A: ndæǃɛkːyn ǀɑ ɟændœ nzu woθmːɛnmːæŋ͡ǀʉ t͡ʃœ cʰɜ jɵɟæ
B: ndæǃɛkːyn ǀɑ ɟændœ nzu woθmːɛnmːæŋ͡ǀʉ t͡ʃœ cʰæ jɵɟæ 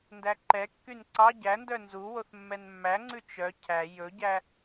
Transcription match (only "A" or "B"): B